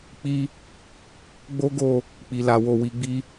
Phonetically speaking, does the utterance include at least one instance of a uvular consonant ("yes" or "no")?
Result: no